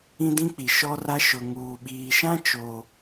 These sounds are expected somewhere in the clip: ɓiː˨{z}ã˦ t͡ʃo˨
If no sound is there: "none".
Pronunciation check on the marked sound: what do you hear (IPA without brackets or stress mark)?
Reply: ʃ